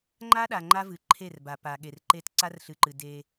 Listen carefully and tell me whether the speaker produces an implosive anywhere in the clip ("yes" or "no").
yes